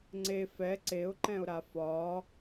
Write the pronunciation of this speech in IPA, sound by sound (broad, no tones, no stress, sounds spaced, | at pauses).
ŋ͡ǀ e f ɛ ǀ e ʊ̯ ǃ ɛ̃ ʊ̯ ɾ a f ɒː